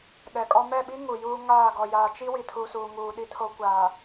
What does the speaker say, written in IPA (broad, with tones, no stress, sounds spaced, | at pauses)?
ɗ ɛ˨ kʼ ɔ˦ m ɛ˦˨ ɓ i˦ ŋ u˨ j uː˦ ŋ aː˦˨ ɡ ɔ˨ j aː˨ t͡ʃ i˦ w i˨ tʰ u˨ s uː˨ ŋ uː˨ ɗ i˦ tʰ o˦ kʷ aː˨